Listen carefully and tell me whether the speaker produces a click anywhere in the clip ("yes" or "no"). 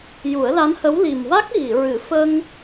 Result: no